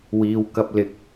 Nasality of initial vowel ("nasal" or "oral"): oral